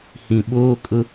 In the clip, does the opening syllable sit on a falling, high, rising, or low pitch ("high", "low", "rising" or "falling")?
low